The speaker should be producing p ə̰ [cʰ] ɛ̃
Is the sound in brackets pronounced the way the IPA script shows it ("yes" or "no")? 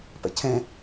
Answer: yes